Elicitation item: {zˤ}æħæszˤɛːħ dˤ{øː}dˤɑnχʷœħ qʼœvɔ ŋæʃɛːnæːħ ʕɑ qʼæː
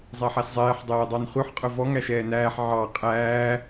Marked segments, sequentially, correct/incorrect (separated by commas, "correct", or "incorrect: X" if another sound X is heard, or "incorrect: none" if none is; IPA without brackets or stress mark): correct, incorrect: ɛː